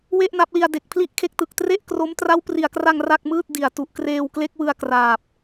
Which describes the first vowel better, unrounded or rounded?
unrounded